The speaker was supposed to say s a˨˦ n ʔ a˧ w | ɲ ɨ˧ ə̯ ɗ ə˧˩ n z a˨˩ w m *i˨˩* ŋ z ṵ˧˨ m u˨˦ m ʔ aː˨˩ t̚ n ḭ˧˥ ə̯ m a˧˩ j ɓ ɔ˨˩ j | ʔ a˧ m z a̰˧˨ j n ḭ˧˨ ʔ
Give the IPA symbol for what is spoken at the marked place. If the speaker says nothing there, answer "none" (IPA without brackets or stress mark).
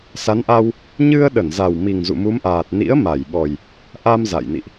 i˨˩